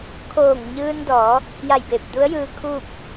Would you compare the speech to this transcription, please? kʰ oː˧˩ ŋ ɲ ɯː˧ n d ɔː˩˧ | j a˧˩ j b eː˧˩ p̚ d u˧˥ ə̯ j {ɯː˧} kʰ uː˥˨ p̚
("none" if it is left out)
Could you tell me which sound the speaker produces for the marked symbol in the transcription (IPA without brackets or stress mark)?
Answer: ɯː˧